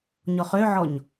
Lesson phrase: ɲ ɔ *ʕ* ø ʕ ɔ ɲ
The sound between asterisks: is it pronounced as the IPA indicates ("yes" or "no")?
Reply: no